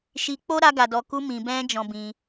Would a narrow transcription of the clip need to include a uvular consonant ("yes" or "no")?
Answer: no